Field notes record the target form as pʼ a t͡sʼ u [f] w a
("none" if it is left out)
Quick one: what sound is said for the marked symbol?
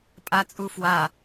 f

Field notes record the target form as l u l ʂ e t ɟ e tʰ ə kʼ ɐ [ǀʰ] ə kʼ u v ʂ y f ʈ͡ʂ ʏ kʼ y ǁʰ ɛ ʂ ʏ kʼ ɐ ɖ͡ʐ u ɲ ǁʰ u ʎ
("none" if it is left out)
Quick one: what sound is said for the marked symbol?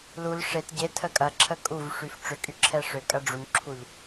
ǁʰ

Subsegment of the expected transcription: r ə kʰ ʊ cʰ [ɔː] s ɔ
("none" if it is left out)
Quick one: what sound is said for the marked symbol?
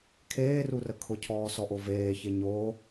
ɔː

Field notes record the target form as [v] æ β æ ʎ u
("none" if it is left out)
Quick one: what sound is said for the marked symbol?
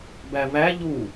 b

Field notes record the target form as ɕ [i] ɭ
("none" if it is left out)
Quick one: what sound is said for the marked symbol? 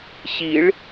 i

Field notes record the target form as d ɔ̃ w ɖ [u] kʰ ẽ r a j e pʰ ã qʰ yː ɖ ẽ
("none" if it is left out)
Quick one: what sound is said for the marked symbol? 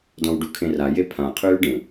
u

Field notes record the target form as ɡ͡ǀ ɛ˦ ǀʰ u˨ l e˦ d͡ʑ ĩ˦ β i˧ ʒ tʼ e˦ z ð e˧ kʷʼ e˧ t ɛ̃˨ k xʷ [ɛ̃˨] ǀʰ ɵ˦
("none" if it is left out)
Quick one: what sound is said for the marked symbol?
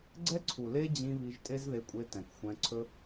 ɛ̃˧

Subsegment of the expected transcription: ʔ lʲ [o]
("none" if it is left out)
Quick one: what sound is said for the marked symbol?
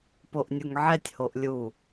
u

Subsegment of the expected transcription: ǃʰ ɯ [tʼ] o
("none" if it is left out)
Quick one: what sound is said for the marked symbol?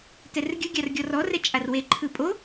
pʼ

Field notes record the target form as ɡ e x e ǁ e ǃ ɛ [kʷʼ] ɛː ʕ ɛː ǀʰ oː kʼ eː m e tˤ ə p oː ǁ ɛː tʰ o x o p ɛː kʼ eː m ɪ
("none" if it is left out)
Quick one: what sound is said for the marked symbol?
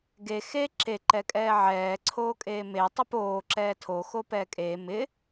kʼ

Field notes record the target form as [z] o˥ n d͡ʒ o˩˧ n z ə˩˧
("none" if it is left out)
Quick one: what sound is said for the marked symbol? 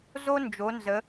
z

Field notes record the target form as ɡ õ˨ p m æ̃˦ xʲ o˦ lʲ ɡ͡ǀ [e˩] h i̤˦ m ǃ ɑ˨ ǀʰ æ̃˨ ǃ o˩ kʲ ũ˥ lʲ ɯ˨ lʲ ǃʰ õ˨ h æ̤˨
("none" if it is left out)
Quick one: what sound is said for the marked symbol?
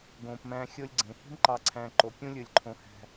ẽ˩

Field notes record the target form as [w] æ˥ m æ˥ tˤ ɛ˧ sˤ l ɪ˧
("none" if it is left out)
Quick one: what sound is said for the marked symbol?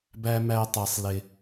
b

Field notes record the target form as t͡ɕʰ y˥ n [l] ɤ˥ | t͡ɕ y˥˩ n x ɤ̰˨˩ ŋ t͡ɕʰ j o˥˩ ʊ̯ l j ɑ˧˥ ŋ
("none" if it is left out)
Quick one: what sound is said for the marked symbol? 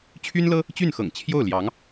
l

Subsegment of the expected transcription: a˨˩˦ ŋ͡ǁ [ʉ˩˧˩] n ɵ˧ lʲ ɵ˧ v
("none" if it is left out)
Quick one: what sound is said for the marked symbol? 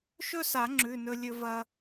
ʉ˩˧˩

